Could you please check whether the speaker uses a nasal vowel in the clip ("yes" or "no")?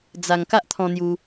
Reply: yes